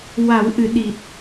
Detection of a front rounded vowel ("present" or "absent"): absent